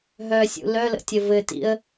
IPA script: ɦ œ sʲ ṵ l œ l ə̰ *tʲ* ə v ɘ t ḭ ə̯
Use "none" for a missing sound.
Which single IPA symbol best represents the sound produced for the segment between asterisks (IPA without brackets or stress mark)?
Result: tʲ